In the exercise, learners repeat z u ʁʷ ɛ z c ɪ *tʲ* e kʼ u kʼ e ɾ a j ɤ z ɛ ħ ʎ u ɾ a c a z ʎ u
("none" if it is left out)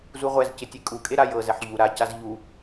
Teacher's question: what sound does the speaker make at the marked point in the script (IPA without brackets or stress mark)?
tʲ